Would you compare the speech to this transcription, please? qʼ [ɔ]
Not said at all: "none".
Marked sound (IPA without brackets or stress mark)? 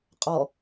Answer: ɔ